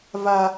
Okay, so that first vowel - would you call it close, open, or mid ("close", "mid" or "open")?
open